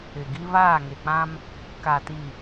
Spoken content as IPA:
ɪ˨ ɡ i˦ β aː˦˨ ŋ e˨ k͡p ã˦ m | k a˨ t i˨

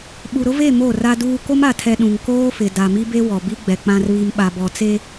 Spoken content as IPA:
ɓ u˨ ɾ ʊ˦ v e˦˨ m o˦˨ r a˦ d uː˦ k o˦ m a˨ tʰ ɛ˨ ɗ ũ˨ ŋ k oː˦ f ɪ˨ d a˨ m i˦ b e˦ w ɔ˨ b i˦ ɡ͡b ɛ˨ k͡p ã˨ r β i˨ m ɓ a˨ b ɔ˨ t͡s e˦

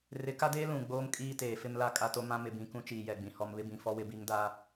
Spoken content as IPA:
r ɪ˨˦ k a˦ d eː˦ l ũ˨ ɡ͡b oː˦ m kʼ iː˦ t eː˨ f ɪ˦ m l a˦ kʼ a˦ t o˦ m ã˦ m ɪ˨ b ĩ˨ k ũ˦ t͡ʃ iː˨ j ɛ˨ ɡ͡b ĩ˨ h ɔ˨ m β ɪ˦ b ĩ˨ f ɔ˦ w ɪ˦ b i˦ ŋ d a˦

